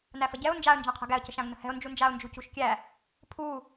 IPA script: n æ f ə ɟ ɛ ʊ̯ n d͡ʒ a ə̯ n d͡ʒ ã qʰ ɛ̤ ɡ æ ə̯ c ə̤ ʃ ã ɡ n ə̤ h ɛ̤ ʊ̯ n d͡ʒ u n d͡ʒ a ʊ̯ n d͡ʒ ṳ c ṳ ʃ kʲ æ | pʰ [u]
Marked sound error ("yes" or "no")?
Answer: no